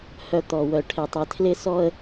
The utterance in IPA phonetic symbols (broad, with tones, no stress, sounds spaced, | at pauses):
h œ˨ t̪ ɔ˨ w œ˨ ʈʰ ɪ˨ tˤ ɪ˨ tʰ l ɪ˦ s ɔ˦ ə̯